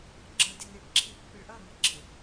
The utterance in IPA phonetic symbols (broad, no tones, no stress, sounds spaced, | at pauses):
ɡ͡ǁ ʌ d e n e ɖ ǁʰ i pː ɪ ɭ ʔ ʌ ŋ ɪ ɡ͡ǁ ɪ